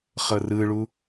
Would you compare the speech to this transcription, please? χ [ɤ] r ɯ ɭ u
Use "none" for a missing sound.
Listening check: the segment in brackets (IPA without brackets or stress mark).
ɤ